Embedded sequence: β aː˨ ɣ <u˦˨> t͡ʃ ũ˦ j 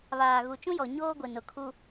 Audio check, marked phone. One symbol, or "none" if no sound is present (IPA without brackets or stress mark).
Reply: u˨